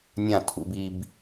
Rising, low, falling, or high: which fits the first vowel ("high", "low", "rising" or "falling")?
falling